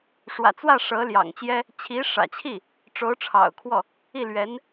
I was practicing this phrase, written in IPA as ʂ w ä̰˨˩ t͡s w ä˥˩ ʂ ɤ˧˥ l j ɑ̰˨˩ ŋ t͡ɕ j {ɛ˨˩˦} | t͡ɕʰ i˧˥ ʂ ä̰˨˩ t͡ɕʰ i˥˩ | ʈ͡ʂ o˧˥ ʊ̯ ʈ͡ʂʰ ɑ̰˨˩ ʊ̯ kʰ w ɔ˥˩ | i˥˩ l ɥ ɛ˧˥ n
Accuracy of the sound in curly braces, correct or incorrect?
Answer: incorrect